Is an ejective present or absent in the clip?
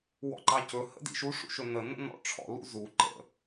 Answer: absent